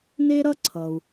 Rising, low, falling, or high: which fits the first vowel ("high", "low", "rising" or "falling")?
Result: high